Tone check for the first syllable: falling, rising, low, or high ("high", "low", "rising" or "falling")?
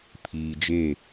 low